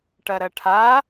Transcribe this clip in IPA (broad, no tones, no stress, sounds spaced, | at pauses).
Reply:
ʈ ɐ ɾ ɐ ʈʰ a